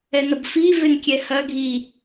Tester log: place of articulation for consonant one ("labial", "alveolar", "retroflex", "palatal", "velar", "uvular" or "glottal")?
alveolar